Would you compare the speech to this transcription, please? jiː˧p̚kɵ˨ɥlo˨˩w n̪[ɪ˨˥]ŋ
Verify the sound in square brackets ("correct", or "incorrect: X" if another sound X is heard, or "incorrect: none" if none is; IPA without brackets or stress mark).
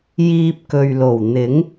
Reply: correct